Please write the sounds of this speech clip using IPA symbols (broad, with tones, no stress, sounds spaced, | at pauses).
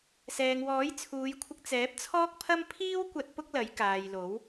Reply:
s ɛː˨ ŋ w ɔː˨˥ j t͡sʰ uː˨˧ j kʷʰ ɪ˧ k̚ t͡s ɛː˨˥ p̚ t͡sʰ ɔː˥ k̚ pʰ ɐ˥ m pʰ iː˥ w kʷ ɐ˧ t̚ p ʊ˥ k̚ l ɐ˨˥ j k aː˨ j l o˨˥ w